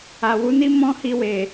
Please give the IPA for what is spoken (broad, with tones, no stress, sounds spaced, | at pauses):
a˨ w u˨˦ n i˦ m ɔ̃˦ h i˧ w e˨